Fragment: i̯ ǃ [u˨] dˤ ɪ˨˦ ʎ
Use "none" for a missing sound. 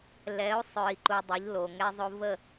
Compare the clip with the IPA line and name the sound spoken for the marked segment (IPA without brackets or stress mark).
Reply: u˨